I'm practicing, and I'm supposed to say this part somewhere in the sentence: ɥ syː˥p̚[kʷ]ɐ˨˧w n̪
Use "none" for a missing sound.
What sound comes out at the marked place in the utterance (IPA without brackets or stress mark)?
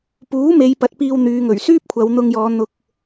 kʷʰ